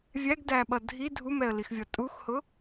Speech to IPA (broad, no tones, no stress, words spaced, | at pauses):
vʲæɡdæɓʌ dʱi dʱumɛə̯lixvʲʌ tʼuxhʊ